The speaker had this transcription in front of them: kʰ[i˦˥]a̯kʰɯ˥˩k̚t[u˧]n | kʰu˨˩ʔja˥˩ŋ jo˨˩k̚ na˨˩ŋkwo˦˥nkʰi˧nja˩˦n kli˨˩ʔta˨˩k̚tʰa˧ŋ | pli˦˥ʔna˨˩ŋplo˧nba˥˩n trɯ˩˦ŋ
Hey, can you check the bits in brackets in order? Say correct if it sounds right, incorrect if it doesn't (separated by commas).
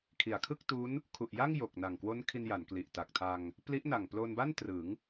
incorrect, incorrect